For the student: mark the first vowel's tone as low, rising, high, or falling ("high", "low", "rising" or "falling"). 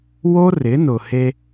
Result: high